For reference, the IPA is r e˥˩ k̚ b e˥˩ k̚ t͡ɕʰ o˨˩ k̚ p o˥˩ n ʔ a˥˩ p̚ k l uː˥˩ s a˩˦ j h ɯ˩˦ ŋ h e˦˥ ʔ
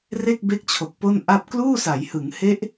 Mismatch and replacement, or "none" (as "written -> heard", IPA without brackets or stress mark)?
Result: none